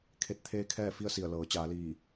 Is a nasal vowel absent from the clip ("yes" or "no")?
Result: yes